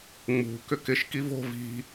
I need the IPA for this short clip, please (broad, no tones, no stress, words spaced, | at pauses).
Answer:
ŋ͡mṳ kʏkɪʃ kivo̤ vi̤